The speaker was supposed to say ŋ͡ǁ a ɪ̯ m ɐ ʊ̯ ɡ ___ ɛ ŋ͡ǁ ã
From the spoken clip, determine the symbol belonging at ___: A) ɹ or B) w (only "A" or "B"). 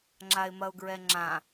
A